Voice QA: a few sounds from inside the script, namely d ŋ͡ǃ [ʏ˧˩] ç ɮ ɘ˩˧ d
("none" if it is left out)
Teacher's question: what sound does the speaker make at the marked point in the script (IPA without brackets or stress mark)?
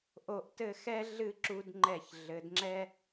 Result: ɛ˧˩